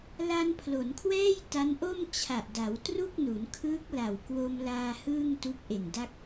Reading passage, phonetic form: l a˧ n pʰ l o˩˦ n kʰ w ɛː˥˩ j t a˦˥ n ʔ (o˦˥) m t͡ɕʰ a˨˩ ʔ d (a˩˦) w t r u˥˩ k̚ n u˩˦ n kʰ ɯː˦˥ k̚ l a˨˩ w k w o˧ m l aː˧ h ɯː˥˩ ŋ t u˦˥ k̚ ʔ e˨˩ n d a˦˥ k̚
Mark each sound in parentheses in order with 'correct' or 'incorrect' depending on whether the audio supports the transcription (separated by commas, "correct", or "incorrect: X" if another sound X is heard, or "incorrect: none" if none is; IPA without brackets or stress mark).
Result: incorrect: o˥˩, correct